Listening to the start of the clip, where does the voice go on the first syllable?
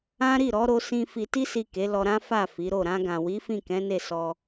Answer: high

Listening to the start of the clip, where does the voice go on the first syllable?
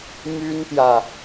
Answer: high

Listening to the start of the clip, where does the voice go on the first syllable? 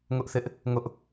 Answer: high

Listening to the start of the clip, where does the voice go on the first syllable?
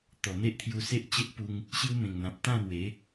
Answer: low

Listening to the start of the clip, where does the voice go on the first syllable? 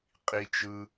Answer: high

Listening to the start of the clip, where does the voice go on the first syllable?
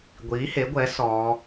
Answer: rising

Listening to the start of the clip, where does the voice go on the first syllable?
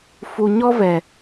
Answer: low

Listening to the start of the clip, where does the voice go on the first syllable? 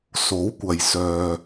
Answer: rising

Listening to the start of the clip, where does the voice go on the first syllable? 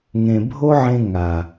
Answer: low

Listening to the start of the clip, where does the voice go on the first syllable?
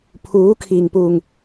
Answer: rising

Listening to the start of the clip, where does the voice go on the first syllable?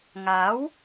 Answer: rising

